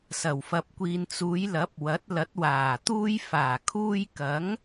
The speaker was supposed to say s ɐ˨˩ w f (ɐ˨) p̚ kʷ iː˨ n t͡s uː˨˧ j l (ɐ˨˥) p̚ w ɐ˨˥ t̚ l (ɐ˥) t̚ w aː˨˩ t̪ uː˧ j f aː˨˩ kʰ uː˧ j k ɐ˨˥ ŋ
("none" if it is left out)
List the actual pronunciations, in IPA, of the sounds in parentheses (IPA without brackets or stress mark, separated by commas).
ɐ˨, ɐ˨˥, ɐ˨˥